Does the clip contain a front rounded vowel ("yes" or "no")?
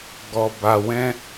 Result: no